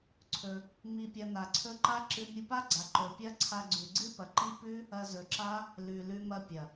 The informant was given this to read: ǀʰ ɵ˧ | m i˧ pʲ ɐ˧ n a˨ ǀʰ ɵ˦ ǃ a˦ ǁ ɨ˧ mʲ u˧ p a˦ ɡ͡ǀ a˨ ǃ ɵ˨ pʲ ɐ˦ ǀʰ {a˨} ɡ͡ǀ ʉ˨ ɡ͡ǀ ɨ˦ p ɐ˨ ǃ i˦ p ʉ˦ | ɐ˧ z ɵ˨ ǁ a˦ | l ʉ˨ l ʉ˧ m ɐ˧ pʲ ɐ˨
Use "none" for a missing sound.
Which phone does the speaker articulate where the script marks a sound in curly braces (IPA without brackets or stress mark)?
a˧